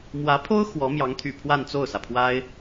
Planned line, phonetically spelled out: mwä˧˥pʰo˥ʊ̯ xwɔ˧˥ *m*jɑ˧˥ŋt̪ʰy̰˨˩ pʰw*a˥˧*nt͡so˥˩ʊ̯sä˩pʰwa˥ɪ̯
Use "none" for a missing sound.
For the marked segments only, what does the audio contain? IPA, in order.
m, a˥˧

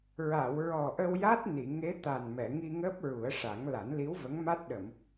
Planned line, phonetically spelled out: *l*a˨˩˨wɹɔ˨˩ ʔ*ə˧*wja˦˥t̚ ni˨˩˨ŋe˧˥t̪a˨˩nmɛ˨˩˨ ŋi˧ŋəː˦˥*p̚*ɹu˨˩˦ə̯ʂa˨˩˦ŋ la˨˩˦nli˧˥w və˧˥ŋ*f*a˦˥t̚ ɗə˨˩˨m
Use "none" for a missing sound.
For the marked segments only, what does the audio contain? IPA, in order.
ɹ, ə˧, p̚, m

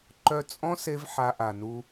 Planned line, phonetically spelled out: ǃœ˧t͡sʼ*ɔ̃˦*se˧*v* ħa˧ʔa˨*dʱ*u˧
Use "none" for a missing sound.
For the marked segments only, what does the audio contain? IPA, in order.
ɔ̃˦, v, n

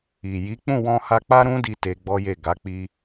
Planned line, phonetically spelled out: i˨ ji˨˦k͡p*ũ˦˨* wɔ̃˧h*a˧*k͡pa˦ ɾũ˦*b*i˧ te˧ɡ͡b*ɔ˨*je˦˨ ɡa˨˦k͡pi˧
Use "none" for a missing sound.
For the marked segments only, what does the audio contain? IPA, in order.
ũ˦˨, a˧, d, ɔ˦

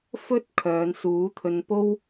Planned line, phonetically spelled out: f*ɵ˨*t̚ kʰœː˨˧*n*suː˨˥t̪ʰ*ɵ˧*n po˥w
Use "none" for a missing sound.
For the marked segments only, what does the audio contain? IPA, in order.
ɵ˥, n, ɵ˧

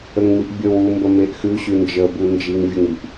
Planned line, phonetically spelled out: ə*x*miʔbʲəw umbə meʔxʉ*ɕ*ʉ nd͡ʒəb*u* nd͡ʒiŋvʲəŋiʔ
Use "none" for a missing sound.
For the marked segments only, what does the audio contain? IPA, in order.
ŋ, ɕ, u

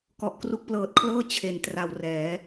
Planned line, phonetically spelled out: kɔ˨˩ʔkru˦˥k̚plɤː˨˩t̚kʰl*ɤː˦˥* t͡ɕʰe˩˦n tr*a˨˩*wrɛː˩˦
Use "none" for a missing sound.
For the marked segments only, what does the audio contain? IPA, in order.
ɤː˥˩, a˨˩

